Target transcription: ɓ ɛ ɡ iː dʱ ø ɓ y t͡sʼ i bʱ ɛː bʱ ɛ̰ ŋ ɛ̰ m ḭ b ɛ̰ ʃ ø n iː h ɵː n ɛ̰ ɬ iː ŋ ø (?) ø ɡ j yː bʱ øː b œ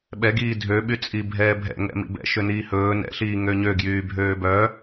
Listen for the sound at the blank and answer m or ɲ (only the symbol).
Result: ɲ